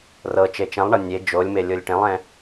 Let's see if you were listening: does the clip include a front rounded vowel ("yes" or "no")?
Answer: no